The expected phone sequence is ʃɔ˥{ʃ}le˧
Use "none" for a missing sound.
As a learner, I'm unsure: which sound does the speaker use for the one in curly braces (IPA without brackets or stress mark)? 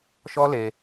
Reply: none